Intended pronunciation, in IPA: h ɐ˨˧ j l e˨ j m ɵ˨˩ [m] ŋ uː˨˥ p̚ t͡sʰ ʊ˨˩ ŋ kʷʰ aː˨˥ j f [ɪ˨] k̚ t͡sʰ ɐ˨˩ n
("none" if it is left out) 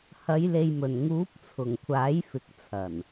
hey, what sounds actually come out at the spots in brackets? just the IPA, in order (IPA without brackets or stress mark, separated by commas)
n, ɪ˨